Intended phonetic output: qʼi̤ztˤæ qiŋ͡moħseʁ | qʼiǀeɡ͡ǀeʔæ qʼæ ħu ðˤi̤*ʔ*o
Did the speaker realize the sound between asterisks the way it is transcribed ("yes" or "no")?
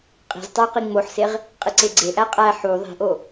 yes